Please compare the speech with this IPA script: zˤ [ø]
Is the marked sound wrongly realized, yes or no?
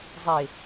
yes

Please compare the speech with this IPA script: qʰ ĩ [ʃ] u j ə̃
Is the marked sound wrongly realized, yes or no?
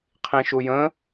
no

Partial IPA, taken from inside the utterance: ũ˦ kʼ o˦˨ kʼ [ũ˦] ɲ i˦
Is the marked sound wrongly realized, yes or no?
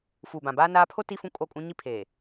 no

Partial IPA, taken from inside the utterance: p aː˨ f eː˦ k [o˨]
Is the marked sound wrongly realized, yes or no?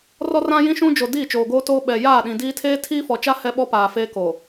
no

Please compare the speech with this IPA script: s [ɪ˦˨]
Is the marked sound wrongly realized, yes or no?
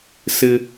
yes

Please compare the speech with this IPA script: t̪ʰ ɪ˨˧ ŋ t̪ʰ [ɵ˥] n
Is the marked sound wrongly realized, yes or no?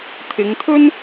no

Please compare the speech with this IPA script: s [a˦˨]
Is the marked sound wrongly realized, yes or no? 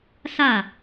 no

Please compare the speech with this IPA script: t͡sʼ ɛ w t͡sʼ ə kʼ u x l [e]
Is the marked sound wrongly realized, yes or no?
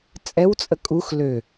yes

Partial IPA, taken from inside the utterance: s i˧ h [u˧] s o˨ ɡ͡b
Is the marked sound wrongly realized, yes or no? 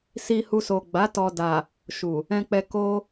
no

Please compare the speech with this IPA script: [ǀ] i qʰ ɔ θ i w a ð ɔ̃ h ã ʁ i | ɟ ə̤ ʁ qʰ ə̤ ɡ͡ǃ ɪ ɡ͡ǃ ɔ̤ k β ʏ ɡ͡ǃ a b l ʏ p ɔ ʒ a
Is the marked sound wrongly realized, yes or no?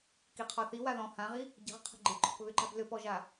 yes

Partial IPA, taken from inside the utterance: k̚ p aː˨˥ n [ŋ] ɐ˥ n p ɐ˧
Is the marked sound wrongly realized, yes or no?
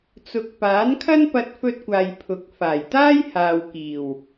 yes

